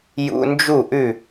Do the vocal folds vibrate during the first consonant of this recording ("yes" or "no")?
yes